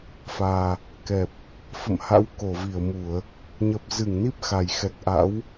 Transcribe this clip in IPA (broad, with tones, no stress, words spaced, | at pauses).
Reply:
faː˨˩ | kɛ˨˩p̚ | fə̰˧˨mha̰˧˥w ko˧˩vi˧˩ə̯mu˧˩˨ə̯ | ɲə˨˩p̚zɨ˧˩ŋ ni˦˥p̚xa˨˩j xɛ˨˩k̚ʔa̰˧˥w